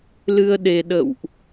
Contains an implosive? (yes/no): yes